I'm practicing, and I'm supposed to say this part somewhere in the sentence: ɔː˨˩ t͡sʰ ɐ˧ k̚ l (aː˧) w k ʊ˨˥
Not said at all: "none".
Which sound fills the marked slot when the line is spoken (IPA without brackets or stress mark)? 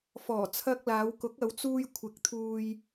aː˨˧